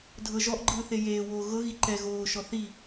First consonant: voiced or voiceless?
voiced